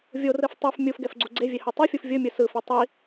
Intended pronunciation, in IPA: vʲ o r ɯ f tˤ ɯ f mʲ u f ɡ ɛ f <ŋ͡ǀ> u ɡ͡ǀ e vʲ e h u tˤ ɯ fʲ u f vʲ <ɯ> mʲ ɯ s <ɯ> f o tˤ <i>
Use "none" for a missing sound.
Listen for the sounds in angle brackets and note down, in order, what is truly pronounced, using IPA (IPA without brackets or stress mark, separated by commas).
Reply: ɡ͡ǀ, ɯ, ɯ, i